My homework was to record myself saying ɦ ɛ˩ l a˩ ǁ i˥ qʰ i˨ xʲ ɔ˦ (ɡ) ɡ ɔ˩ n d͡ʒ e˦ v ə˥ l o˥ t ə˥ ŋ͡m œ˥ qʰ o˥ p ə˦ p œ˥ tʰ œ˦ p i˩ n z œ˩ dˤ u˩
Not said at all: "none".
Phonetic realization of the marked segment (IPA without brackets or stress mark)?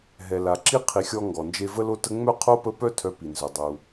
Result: ŋ